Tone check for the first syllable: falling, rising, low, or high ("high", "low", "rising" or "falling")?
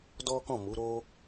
high